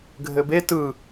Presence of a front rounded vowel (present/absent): absent